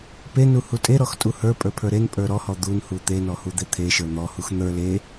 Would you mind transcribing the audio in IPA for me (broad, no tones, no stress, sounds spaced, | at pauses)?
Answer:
p e n u h u tʼ e ɾ ɔ x tʼ u h ə˞ pʼ ə˞ pʰ ə˞ ɾ e n pʼ ə˞ ɾ ɔ h ɔ d̪ u n h u t̪ e n ɔ h u d̪ e t̪ʰ e ʃ ə˞ n̪ ɔ h u x n̪ ə˞ l e